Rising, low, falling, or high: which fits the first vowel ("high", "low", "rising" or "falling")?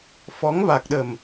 rising